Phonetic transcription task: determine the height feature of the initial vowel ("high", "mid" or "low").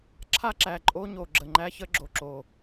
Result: low